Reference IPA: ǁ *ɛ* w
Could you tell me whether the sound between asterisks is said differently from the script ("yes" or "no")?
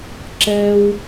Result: no